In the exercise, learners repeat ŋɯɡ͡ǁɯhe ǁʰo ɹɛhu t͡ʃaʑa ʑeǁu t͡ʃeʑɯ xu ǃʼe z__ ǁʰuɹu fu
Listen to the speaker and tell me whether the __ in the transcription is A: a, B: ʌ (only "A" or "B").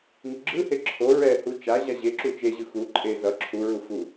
B